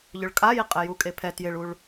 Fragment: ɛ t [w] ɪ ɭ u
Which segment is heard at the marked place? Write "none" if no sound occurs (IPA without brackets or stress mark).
j